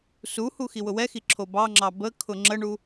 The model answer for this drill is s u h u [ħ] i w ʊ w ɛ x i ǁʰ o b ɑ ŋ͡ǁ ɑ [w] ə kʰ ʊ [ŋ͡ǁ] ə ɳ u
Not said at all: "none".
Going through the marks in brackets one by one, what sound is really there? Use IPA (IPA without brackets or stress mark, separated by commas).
x, b, ŋ͡ǁ